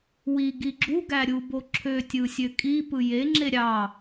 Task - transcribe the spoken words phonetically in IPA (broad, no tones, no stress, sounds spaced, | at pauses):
w i ɡ i ɡ͡ǁ u ɡ æ ɾʲ u b o ǁʰ ø tʲ ɯ sʲ ø kʼ i p ɯ j e ŋ͡ǁ e ɾʲ ɑ